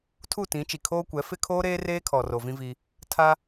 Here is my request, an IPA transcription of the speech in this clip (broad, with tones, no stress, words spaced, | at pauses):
tʰu˦˨tĩ˨˦ t͡ʃi˨kʰoː˦kʷɛ˨˦ fɪ˦kʰoː˦ɾeː˦reː˦ kʰɔ˨ro˨vĩ˦vi˦ | tʰa˦